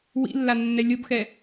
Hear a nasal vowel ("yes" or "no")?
no